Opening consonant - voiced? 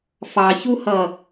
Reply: no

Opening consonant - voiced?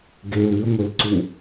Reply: yes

